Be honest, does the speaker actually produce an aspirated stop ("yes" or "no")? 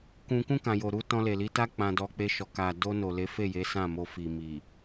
no